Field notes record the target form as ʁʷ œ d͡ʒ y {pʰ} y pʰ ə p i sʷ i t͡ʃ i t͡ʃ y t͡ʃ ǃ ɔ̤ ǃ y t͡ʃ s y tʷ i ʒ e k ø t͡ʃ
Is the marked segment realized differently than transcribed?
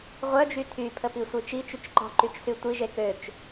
yes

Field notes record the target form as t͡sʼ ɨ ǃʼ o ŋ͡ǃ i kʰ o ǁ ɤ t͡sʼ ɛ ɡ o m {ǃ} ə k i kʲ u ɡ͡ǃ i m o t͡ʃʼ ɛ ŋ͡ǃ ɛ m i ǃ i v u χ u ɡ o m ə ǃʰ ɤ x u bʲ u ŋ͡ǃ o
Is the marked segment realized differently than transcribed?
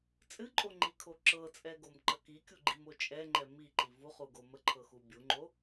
no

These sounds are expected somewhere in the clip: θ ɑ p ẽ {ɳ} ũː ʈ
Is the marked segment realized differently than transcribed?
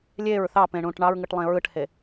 no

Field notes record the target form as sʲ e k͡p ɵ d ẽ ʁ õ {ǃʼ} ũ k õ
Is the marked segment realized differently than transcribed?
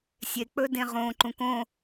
yes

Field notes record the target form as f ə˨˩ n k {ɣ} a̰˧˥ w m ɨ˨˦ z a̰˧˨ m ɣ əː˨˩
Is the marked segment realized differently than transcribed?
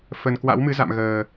yes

